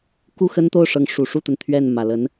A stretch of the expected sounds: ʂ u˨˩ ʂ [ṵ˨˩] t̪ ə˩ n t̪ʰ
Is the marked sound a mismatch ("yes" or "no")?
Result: yes